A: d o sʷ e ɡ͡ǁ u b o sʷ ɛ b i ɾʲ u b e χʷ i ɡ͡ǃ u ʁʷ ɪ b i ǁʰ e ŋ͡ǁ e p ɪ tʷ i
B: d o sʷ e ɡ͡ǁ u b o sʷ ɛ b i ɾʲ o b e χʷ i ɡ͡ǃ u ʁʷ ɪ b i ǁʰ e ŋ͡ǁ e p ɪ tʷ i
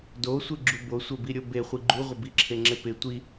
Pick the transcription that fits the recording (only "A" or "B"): B